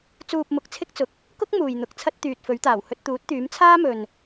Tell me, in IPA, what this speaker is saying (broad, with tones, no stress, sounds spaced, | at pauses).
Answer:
t͡s uː˧ p̚ m ʊ˨˥ k̚ t͡sʰ ɪ˥ k̚ t͡s ʊ˨ k̚ | k ʊ˥ k̚ m uː˨ j n̪ ʊ˨˥ k̚ t͡sʰ ɐ˥ t̚ t̪ yː˨ t̚ f ɵ˨˥ ɥ t̪ aː˨˩ w h ɵ˧ t̚ t̪ uː˨˥ t̚ t̪ yː˨˥ m t͡sʰ aː˥ m ɵ˨ n